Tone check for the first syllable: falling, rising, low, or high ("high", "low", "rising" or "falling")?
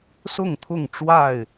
falling